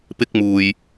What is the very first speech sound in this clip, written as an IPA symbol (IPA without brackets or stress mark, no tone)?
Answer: p